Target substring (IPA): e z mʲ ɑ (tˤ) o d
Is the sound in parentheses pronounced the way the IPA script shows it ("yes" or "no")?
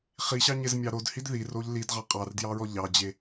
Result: no